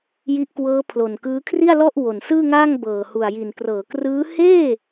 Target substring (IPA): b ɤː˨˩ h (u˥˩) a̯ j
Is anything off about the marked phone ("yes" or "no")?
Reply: yes